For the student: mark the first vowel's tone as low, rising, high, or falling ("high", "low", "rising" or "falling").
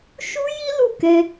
high